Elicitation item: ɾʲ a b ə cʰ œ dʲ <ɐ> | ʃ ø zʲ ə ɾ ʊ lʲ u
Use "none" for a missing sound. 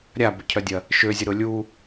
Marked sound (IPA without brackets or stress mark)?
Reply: ɐ